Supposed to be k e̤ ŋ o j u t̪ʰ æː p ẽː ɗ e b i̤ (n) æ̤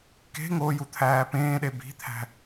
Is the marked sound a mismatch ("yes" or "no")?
yes